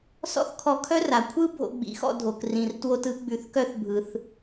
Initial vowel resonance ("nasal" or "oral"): oral